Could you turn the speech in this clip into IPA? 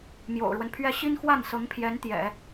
m j o̰˨˩ ʊ̯ ɻ w ə˦ n pʰ ɥ ɛ˥ ɕ i˥ n x w a˥˩ n s ɤ˧˥ ŋ pʰ j ɛ˧˥ n t̪ j ɛ̰˨˩˦

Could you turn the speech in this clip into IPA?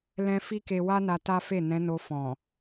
l ɛ̃˧ f i˦ k e˧ w a˦ n a˧ t a˦ f e˦˨ n ɛ̃˨˦ n o˧ f ɔ̃˨

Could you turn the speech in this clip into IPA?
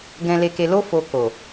ɡ ɛ̃˨ l e˨ k e˨ l o˧ f o˧ k o˨

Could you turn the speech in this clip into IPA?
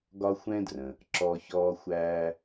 ɡ ɒ˥ xʷ ɛ̃˥ d r ə̃˩ | ǁ ɔ˧ ç ɔː˧ xʷ æː˧

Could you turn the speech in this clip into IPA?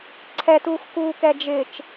ǀʰ ɛ t uː x k uː k ɛ d͡ʒ ɪ t͡ʃ

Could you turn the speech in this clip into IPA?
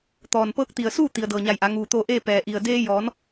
t̪ ɔː˩ n p ɤː˧˥ k̚ t̪ i˩ ə̯ s uː˥˨ t̪ i˩ ə̯ d ɤː˩ ɲ a˧˩ j ʔ a˩˧ ŋ uː˩ t̪ o˧ ʔ eː˥˨ p ɛː˧˩ ʔ i˧˩ ə̯ d eː˧ j ɔː˩˧ n

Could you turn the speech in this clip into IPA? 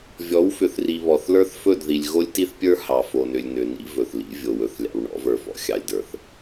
vʲ ɔ˨˦ w f ʏ˨ θ r i˨ β ɔ˨ θ l ə˞˦ θ f ɵ˦˨ d ð i˨ lʲ ɣ o˦ lʲ t i˦ θ pʲ ə˞˦ h ɑ˨ f o˨ n ʏ˨ lʲ n ʏ˨ n ḭ˦ v ɵ˨ θ l ḭ˦ vʲ o˨ w ɵ˨ θ lʲ ɑ̰˨ w ɳ ɔ̰˨˦ v ə˞˨ f ɔ̰˨ xʲ ɑ˨ lʲ d ə˞˨ θ

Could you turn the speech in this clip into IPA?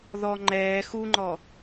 ð ɔ ŋ͡ǃ ɛː x u ŋ͡ǃ ɔ

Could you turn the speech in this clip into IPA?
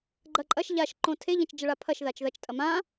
ɡ͡ǃ ɐ ǃʼ ɐ ʃ ʎ a ʃ ǃ õ tʰ e ʎ ɐ̃ t͡ʃ d͡ʒ ɐ ɭ a pʰ ɐ ʃ ð a t͡ʃ ð ɐ t͡ʃ tʼ ɐ m ã

